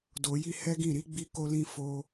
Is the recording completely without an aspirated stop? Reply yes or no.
yes